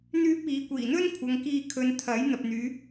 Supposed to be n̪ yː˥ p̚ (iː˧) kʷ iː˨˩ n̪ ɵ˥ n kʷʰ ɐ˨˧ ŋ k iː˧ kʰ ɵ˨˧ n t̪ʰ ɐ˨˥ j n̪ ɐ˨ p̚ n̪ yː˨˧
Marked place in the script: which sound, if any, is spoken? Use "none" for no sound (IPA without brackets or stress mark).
iː˨˧